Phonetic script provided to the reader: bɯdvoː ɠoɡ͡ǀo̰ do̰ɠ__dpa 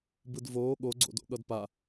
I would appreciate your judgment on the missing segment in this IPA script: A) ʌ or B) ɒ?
A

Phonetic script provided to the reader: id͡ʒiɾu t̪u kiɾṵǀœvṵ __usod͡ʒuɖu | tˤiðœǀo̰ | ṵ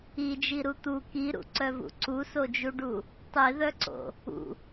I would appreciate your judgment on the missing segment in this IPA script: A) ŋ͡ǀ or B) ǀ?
B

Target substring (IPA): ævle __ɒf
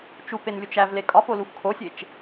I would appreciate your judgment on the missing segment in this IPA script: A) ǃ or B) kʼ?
B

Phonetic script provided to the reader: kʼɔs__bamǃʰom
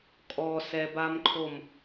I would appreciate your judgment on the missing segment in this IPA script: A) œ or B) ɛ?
B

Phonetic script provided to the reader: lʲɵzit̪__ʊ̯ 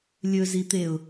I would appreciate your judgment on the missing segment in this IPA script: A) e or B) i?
A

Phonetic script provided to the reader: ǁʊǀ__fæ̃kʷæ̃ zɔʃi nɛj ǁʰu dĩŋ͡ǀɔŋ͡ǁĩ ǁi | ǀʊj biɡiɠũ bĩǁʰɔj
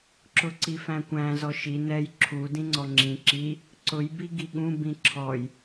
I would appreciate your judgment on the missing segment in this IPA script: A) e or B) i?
B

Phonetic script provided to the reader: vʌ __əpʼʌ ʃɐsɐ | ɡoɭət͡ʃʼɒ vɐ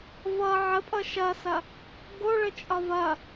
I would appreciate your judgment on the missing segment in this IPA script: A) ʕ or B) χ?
A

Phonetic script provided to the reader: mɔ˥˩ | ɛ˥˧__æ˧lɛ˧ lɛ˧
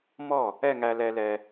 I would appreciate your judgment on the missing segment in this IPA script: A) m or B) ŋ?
B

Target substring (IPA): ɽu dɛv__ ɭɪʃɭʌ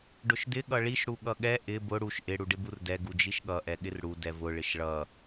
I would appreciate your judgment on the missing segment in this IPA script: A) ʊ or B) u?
A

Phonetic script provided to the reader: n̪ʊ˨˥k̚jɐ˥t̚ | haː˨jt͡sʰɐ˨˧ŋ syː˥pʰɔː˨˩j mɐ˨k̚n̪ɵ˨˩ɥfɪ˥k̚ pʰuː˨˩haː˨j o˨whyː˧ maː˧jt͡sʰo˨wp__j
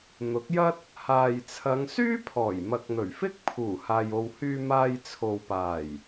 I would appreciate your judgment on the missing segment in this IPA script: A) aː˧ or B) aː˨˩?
B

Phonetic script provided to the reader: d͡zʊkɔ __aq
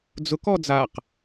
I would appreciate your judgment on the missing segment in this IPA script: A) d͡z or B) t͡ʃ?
A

